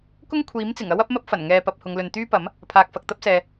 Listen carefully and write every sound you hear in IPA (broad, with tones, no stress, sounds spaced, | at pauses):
k ʊ˥ ŋ kʷʰ iː˨˥ m t͡s ɪ˨˩ ŋ ɐ˥ w ɐ˥ p̚ m ɐ˥ p̚ f ɐ˨˩ n ŋ ɛː˨ p ɐ˨ p̚ h ʊ˨˧ ŋ l ɵ˨ n t̪ yː˥ p ɐ˨˥ m | pʰ aː˨ k̚ f ɐ˨ k̚ t̪ ɐ˥ p̚ s ɛː˨